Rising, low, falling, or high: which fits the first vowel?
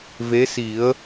rising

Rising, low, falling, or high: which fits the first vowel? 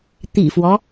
low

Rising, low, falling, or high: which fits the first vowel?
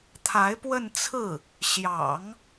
rising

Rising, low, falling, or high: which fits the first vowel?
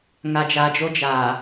low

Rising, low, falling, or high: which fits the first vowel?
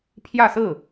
falling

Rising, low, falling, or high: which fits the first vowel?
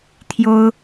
high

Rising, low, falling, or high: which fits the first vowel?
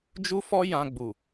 high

